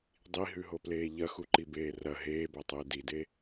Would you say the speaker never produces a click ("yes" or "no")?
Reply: no